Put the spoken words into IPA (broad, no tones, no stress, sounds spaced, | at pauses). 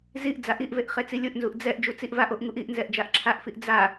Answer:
z i ʔ d͡z a ʔ i ʔ v e ʔ χ e t͡s i lʲ o ʔ n z u ʔ d͡z ɛ ʔ d͡ʒ u t͡s i ʔ v a ʔ o ʔ ŋ u ʔ i ʔ n z ɛ ʔ d͡ʒ a ʔ ǁʰ a ʔ f i ʔ d͡z a